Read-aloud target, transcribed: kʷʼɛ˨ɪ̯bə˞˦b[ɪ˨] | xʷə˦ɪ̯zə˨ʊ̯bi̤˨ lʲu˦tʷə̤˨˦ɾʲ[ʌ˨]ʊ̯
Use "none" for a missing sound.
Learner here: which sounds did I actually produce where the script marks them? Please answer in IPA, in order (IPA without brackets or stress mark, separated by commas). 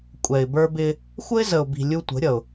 ɪ˦, ʌ˨